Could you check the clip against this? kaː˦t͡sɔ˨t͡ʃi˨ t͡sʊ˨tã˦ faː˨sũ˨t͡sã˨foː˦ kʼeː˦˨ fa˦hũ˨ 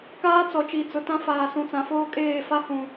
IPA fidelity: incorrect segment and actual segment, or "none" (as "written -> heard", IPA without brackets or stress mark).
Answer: none